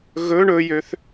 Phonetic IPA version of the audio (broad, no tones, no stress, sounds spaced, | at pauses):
ɣ ɵ ɳ ɵ j ø θ